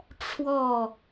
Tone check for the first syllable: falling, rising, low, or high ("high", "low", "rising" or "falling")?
falling